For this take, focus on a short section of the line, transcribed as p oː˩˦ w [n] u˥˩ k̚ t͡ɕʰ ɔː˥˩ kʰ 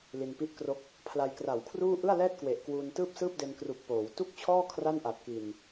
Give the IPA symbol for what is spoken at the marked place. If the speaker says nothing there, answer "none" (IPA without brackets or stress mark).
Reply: t